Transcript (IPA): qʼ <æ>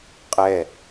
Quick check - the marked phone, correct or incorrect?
incorrect